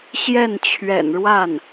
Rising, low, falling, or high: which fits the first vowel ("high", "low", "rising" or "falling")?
falling